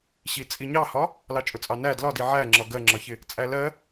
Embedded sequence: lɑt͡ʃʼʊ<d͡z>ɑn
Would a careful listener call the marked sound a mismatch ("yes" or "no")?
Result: yes